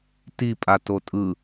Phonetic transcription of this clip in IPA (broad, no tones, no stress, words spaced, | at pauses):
ti pʼatotʼɯ